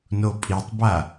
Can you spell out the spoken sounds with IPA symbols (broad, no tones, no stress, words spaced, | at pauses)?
nopʼitˤba